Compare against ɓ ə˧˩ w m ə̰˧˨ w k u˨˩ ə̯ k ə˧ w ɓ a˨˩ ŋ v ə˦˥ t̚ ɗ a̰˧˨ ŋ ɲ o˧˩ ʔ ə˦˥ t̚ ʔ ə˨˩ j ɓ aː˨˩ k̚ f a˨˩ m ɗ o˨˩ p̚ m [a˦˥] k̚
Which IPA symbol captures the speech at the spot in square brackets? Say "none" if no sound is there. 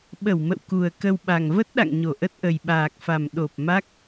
a˦˥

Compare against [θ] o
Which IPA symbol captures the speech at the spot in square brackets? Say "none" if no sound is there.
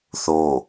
θ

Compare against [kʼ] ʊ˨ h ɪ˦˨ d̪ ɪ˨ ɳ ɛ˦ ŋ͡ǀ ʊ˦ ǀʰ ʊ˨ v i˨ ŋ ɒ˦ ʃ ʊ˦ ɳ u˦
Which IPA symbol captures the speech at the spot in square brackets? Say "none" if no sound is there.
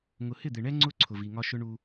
ŋ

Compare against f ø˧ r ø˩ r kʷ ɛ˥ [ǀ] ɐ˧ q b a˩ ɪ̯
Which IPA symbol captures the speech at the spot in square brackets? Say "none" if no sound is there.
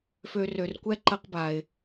ǃ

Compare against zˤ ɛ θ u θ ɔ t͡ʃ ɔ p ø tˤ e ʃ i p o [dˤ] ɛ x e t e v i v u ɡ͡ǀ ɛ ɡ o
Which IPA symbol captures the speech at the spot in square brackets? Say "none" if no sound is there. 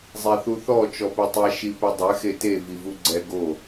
dˤ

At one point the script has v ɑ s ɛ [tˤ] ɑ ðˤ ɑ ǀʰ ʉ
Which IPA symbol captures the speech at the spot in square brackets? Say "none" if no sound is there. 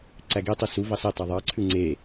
tˤ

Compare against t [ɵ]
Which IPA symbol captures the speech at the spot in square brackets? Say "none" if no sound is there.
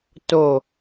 o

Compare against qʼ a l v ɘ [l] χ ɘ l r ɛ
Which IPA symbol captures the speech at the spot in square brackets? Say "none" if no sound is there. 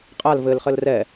l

